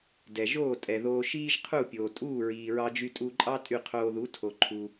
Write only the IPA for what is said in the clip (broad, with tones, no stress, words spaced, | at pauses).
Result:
dɛ˩ʒoː˥˩ tʼɛ˩ðoː˧ ʃiː˥ʒqʰu˥˩pʲoː˩ tʼuː˥˩ɹiː˩ɹɑ˧d͡ʒy˧ tʼu˧ǃʼɑ˥ tʼy˥˩qʰoː˧ ðu˩˥tʰo˩ǃʰu˩